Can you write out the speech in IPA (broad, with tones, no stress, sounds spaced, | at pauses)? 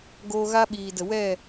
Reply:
ɡ oː˧ ɣ a˦ ɓ iː˨ d ə˨ w ɛ˦˨